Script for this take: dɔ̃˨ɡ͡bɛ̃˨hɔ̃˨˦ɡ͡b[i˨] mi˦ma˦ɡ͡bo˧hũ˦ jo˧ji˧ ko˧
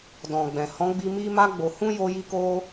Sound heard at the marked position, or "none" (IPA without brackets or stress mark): i˧